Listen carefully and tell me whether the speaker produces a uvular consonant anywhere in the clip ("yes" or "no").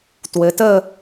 no